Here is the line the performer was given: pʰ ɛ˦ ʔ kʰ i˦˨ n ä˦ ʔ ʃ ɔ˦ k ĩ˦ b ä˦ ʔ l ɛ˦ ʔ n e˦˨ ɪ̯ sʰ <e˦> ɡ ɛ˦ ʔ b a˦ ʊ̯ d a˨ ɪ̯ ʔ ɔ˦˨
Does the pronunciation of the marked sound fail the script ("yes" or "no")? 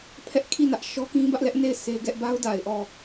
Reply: no